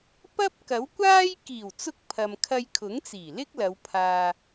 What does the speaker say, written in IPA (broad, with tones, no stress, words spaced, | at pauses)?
pɐ˥p̚ kɐ˨˥wkʷaː˥j kiː˨˩wt͡sʊ˧k̚ pʰɐ˨mkʰɐ˧jkʰʊ˨˥ŋt͡siː˨˩ lɪ˥k̚lɐ˨˧wpʰaː˨